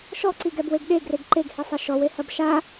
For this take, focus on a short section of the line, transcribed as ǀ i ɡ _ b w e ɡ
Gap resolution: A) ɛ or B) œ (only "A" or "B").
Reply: A